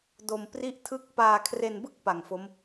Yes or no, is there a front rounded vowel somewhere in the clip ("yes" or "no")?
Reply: no